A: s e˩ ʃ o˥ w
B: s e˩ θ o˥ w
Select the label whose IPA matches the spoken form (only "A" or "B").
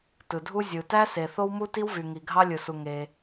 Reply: B